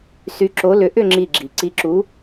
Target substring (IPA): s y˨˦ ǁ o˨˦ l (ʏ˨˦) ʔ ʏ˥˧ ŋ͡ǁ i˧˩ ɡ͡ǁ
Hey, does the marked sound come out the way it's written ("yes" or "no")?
yes